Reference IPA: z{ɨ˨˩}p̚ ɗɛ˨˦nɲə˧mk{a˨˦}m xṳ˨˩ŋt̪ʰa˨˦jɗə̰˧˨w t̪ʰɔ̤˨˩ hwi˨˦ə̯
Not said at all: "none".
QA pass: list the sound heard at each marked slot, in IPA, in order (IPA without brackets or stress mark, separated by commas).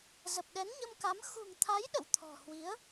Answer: ə˨˩, a˨˦